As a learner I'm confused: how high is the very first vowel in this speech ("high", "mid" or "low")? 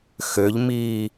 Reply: mid